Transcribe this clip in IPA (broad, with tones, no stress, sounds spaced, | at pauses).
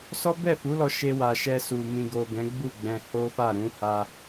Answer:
s ɔ˦ b ɛ˦˨ f u˨˦ l ɔ˧ ʃ e˧ w a˨ ʃ ɛ˧ s u˨ m ĩ˨ ɡ o˨ ɡ ɛ̃˨˦ ɡ͡b u˦˨ ɡ͡b ɛ̃˧ h o˦ f a˦˨ ɾ ũ˨˦ h a˧